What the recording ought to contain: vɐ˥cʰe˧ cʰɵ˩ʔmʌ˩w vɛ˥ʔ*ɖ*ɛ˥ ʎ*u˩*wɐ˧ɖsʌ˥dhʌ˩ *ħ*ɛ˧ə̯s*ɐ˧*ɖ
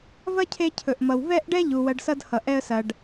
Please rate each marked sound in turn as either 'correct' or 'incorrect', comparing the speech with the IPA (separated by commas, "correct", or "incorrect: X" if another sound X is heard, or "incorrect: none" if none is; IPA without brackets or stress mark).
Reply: correct, correct, incorrect: ʔ, incorrect: ɐ˩